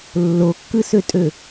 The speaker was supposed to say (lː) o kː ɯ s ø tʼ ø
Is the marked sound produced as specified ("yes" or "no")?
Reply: yes